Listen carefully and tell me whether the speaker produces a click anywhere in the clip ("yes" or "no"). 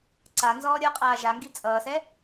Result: yes